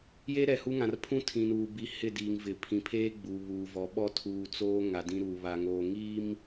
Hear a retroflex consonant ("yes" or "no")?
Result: no